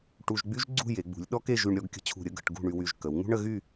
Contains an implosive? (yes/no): yes